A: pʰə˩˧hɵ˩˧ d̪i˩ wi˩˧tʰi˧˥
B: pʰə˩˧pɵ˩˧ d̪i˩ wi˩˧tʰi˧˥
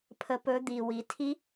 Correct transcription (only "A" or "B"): B